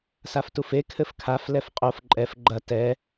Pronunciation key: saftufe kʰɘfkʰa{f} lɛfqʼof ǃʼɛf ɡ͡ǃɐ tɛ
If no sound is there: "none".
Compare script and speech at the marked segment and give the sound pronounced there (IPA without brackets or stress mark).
f